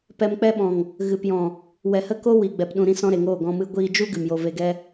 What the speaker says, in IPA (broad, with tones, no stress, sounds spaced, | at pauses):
p ɛ˧ m k͡p ɛ˦ ɓ ɔ̃˨ ŋ | ɣ ɨ˨ p j ɔ̃˨ | w ɛ˨ h ə˦ k o˦ w i˨ ɡ͡b ɛ˨ p ɗ ũ˨ ɾ ĩ˦ s ɔ̃˦ ɾ e˨ ŋ oː˦˨ ɡ ɔ̃˧ m ɨ˧ ɡʷ iː˧ d͡ʒ u˦ ɡ ɨ˨ m j o˧ v e˧ ɡ ɛ˦